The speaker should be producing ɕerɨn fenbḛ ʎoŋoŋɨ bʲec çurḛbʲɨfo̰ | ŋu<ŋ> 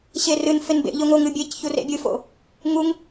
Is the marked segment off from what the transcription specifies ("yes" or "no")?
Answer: no